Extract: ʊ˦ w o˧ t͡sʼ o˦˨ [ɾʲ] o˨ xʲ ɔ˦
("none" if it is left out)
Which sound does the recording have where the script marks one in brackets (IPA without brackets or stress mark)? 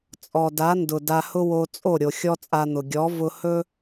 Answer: ɾʲ